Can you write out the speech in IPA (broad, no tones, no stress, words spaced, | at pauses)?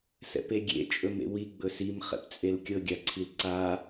sɛ̰peɡʲḛ t͡ʃʼɵmḛwi ɡ͡bɵsim χɛ̰pt͡sʼelkʲɤ ɡʲaǀʰilǀa